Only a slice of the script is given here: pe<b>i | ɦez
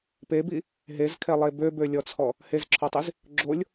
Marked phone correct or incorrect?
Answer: correct